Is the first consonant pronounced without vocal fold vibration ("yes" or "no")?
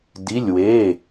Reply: no